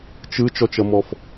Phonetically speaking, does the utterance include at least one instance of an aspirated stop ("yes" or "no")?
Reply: no